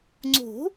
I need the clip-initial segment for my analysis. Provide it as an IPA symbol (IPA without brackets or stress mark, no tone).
ŋ͡ǀ